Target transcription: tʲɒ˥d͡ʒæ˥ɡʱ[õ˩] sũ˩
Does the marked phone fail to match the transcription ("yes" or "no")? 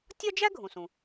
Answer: yes